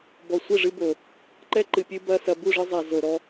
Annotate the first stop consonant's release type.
plain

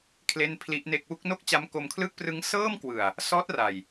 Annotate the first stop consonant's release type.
aspirated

